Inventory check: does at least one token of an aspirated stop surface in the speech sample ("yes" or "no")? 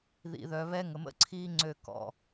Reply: yes